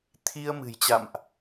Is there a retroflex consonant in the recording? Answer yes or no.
no